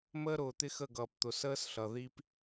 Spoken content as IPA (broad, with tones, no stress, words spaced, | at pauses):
məː˦ɾʊː˨t̪ɪ˦xə˦˨ ɡʌː˨pt̪ʊ˨ səː˦sɬʌ˨ ði˦p